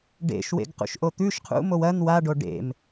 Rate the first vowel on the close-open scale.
mid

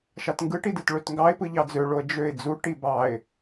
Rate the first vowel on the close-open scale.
open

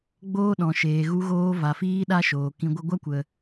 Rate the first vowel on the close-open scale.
mid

